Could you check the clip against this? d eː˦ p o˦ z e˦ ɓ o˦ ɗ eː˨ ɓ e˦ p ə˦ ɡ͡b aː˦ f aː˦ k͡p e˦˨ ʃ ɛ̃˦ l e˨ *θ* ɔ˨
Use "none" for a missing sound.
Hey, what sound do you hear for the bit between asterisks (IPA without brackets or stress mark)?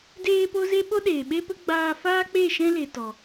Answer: t